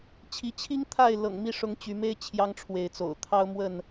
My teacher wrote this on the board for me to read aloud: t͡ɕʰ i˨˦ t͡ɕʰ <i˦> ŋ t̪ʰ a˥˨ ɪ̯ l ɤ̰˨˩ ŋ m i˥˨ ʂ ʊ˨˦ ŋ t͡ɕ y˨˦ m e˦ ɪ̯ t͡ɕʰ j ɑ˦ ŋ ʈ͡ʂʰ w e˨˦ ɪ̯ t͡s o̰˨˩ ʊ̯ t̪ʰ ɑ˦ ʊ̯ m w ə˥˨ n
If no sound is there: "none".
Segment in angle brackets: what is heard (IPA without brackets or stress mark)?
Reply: i˦